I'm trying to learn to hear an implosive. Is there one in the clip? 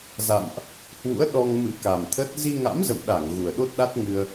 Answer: yes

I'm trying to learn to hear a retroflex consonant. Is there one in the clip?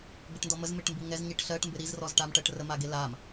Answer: yes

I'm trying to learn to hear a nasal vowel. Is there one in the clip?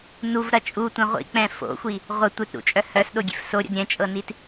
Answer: yes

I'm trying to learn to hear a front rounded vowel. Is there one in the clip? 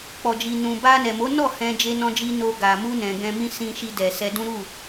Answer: no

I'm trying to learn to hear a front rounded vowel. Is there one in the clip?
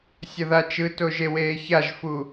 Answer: no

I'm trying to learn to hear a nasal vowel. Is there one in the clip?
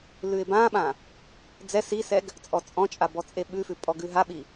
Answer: yes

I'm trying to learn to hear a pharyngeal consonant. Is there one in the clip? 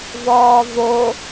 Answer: no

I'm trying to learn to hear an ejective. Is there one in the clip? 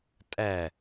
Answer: yes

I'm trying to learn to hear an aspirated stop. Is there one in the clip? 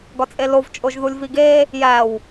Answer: no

